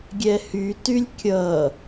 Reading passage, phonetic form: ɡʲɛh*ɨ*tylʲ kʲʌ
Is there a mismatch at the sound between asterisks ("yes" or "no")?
yes